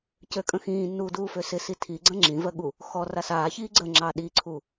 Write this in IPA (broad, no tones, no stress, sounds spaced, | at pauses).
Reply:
c ø kʼ ə̃ x ĩː nː uː d uː f ø s ɪ s i tʰ i ɡ͡ǀ ə̃ ŋ͡ǁ ĩ v ɜ ɠ u | x ɔ r a s aː ç iː ɡ͡ǀ ə ŋ͡ǁ ɑ ɗ i ǀʰ u